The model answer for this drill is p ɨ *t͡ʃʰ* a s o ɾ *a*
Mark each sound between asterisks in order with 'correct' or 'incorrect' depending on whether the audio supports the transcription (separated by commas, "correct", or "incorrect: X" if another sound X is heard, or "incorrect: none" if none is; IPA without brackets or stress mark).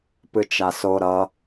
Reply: incorrect: t͡ʃ, incorrect: ʌ